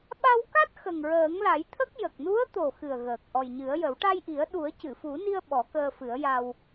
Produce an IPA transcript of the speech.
ɓa˧wka˦˥t̚ xə˨˩ŋɹəː˨˩˦ŋla˨˩˦jt̪ʰə˦˥k̚ jə˨˩k̚nu˧˥ə̯t̪o˨˩ xɨ˨˩ə̯ɣəː˨˩k̚ ʔɔ˨˩jɲɨ˨˩˦ə̯jə˨˩˦w ʈa˧jʔi˨˩˦ə̯ ɗu˨˩˦ə̯cɨ˨˩˨fu˨˩˦ni˧ə̯ ɓɔ˨˩˦kəː˧fɨ˨˩˦ə̯ja˧w

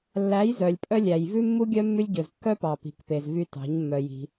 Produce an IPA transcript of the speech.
lːæ˨˦jzœ˨lʲ pʼœ˧lʲæ˨j vʉ˦mːu˦ɡʲœ˦ mːʉ˧lʲɟɵ˨z kːœ˦pɑ˨ pi̤˨kpe˨z vy˧tɑ̤˨˦ɲmːœ˧ji̤˧

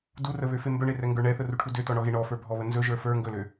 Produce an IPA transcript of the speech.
durəβøfe mbɵɳerɛŋɡə˞ ɳɛθəruʈʰu døtɔɳɔɣe ɳɔfə˞bʱɔβə nzɵʒə˞ fə˞ ŋɡɵlø

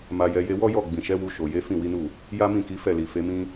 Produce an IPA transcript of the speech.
ma˧jɛ˧ je˧wɔ˦jɔ˦˨ ɡ͡bĩ˨ʃɛ˨˦wu˧ ʃo˨je˨˦ fĩ˦˨wi˨˦nu˦˨ | ja˦mĩ˦˨ki˨˦ fɛ˦˨li˨fe˨˦mĩ˦

